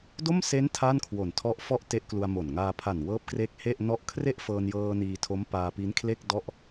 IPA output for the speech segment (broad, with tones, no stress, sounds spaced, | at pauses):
d o˥˩ m s e˦˥ n tʰ a˥˩ n kʰ w o˨˩ n tʰ ɔ˦˥ ʔ f ɔ˥˩ ʔ t e˦˥ ʔ k l u˧ a̯ m o˨˩ n ŋ aː˧ pʰ a˨˩ n w ɤː˦˥ p̚ k r e˦˥ k̚ h e˥˩ ʔ n ɔ˥˩ ʔ kʰ r e˥˩ ʔ f ɤː˧ n j ɤː˧ n iː˧ tʰ o˦˥ m p aː˧ p i˦˥ n kʰ l e˥˩ k̚ d ɔ˥˩ ʔ